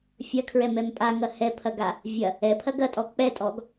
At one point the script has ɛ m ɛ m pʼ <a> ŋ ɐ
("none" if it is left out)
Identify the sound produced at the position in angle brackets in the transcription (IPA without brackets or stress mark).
a